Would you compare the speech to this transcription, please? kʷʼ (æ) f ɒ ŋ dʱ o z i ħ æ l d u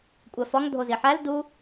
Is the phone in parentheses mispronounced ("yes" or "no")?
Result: no